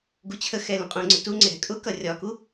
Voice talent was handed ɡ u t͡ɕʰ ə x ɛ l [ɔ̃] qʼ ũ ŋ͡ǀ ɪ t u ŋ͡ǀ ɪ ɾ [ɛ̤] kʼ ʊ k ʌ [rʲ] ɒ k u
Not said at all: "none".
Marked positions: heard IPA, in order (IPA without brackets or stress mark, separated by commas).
ə̃, ɛ̤, rʲ